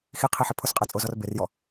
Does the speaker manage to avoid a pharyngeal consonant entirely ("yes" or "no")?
no